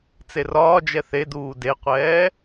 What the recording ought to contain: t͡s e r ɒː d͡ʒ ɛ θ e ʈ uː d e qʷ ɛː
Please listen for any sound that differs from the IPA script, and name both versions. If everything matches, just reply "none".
ʈ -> d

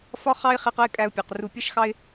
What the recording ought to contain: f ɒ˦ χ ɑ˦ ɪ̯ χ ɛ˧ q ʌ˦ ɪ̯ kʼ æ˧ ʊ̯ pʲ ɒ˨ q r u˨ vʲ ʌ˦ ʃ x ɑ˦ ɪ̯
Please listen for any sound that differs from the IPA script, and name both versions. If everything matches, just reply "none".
vʲ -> pʲ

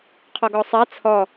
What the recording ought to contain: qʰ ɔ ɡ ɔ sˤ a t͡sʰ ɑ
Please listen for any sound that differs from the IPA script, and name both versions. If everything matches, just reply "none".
ɑ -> ɔ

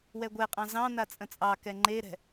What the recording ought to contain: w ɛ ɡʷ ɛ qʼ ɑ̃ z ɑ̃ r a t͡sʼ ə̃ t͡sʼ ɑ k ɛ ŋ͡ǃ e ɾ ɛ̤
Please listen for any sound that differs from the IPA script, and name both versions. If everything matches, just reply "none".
r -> n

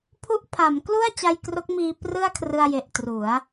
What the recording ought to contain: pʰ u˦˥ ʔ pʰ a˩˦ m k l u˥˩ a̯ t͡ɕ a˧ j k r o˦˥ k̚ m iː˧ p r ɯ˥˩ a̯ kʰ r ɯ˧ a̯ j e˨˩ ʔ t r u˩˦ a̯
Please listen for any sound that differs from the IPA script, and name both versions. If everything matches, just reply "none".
none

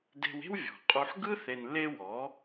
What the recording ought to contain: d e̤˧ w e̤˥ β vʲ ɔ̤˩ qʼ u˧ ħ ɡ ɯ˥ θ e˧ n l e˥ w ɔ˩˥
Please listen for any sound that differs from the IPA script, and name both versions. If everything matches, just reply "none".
β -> w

